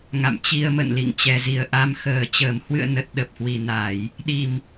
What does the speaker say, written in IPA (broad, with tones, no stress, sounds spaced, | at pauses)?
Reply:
ŋ a̰˧˨ m t͡ɕ i˧ ə̯ m ə̰˧˨ n l ḭ˧˨ ŋ t͡ɕ ɛ˨˩ z i˨˩ ə̯ ʔ a˧ m x əː˨˩ t͡ɕ əː˨˩ m h w ɨ̰˧˨ ə̯ n ə˨˩ t̚ ɗ ə˨˩ p̚ h w i˨˩ n a˧˩˨ j | ɗ i˨˩ m